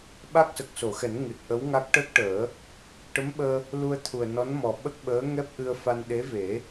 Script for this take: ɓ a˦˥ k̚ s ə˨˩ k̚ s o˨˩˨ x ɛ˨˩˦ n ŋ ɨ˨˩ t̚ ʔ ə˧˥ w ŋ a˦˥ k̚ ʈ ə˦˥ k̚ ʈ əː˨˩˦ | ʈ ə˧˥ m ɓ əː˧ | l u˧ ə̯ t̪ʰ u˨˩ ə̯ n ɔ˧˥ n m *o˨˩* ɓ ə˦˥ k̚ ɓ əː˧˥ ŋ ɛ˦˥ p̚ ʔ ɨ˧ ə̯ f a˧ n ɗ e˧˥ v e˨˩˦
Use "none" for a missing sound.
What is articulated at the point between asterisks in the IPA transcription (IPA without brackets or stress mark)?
ɔ˨˩